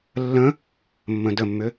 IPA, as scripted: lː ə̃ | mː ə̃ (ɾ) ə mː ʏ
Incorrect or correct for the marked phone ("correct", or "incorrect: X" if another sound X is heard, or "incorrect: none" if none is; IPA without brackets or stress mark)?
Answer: incorrect: d